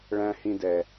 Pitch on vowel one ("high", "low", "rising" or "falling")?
high